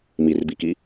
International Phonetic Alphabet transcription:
m i r b i k i

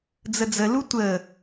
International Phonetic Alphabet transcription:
d͡z ə d͡z ə l u tʷ ə

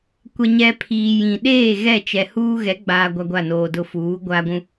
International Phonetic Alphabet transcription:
kʷ ɛ˨ ɲ ɛ˨ pʰ iː˨ j ĩ˨ ɗ eː˦˨ ɣ ɛ˦˨ t͡ʃ ɛ˨ h uː˦ ɣ ɛ˨˦ ɡ͡b aː˨ ɡʷ a˦ ɡʷ a˦˨ n oː˨ d ʊ˦ f uː˨˦ ɡʷ a˦ ɡʷ ũ˦

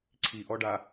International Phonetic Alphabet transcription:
ǀʰ i ʔ ɔ ɖ a

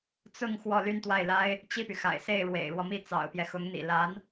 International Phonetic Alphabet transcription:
t͡s ʊ˥˧ ŋ x w ɔ˥˧ l y˥˧ n t̪ w a˥˩ ɪ̯ l a˥ ɪ̯ | t͡ɕ i˥˩ p y˩ x a̰˨˩ ɪ̯ s e˥˩ ɪ̯ ɻ w ḛ˨˩ ɪ̯ ɻ w ɔ˦ m i˥˩ t͡s ɑ̰˨˩ ʊ̯ p j ɛ˦ x ʊ˧˥ ŋ n̪ ḭ˨˩ l a˧˥ n

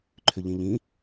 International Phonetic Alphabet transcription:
ǃʰ ʏ ʎ ĩ ʎ ĩ

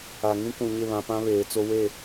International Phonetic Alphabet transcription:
a˨ ŋ ĩ˦ k ũ˨ ɲ ɪ˦˨ β ã˨ p ã˦ β eː˨ t͡s o˦ w e˦˨

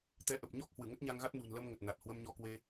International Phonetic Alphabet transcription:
t̪ ɛ˧ ʔ ə˨˩ p̚ ɲ ɔ˦˥ k̚ h w ɨ˧˩ ŋ ə˦˥ t̚ ɲ a˧ ŋ ɣ a˦˥ t̚ n ṳ˨˩ n l ə˧ m ŋ ə˨˩ t̚ n a˨˩ t̚ h w ə˧ m ɲ ɔ˧ k w e˧

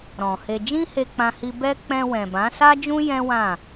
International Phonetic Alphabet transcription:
ɾ ɔ̃˨ h e˧ d͡ʒ ĩ˦ h e˧ k͡p ã˧ h i˧ b ɛ˦ k͡p ɛ̃˧ w ɛ̃˨ b ã˨˦ s a˦ d͡ʒ ũ˦ j ɛ̃˦ w ã˦˨

